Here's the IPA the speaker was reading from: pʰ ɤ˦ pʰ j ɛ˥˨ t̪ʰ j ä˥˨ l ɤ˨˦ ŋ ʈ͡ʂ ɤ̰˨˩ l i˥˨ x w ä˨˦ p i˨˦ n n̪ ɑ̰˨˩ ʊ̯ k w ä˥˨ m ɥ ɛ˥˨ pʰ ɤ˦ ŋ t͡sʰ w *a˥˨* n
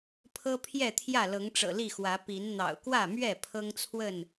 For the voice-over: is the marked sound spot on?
no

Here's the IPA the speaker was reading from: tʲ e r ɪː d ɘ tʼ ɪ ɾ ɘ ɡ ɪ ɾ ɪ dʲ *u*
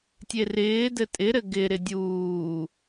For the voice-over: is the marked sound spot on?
no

